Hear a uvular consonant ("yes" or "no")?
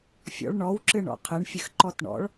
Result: yes